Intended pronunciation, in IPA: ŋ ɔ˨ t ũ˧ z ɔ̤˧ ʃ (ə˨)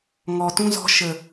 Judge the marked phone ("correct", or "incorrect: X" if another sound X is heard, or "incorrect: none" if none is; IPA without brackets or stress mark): correct